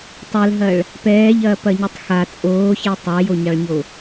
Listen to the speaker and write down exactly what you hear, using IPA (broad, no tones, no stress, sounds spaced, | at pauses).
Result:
tˤ ɛ l ɦ ɐ ɭ | p ɛː ʎ ɐː p ɐ ɲ u tˤ x a t͡sʼ oː ç ɛ tˤ a j o ɲ ɑ ɭ ɲ o